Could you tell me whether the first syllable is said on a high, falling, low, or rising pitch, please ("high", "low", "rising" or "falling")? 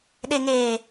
low